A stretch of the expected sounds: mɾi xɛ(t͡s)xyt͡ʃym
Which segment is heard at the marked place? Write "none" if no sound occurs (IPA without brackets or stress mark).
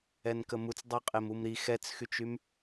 t͡s